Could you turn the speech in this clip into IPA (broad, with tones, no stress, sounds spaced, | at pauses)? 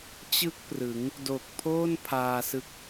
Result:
t͡ɕ ɯ˥˩ k̚ p r ɯ˩˦ ŋ | d o˨˩ k̚ pʰ oː˥˩ n pʰ aː˧ s ɯ˦˥ k̚